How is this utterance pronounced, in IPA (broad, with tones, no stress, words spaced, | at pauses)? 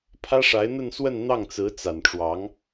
pʰä˥ʂa˧˥ɪ̯n̪ə˥˧nswə˥˧n n̪ɑ˥˩ŋt͡sɹ̩˧˥t͡sa˨˩nʈ͡ʂwɑ˧˥ŋ